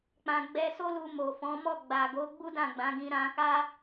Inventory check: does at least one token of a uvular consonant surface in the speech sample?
no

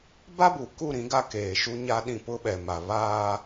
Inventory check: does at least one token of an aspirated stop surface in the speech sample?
no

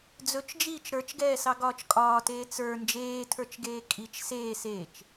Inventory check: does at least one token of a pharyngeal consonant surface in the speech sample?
no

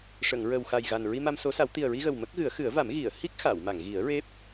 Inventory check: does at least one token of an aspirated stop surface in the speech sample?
no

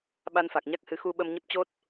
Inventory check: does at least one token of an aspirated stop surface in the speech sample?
no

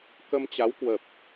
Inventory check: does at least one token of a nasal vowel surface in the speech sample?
no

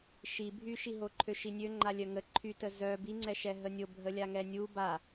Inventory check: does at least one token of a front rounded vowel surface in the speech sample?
yes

